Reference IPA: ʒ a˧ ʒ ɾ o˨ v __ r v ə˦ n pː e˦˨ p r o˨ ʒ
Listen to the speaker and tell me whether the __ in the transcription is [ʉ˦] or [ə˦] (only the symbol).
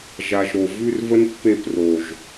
ʉ˦